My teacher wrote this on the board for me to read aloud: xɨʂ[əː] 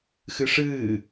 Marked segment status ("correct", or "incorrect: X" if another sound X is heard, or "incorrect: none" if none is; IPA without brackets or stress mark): incorrect: ɨː